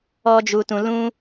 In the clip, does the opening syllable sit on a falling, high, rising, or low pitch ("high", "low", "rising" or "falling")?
high